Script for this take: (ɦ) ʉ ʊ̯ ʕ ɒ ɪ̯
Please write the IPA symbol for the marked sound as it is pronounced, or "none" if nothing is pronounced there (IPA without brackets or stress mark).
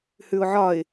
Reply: h